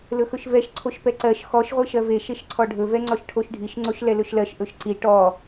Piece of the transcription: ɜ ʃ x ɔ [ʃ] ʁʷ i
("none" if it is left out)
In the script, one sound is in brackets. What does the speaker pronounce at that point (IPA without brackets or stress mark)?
ʃ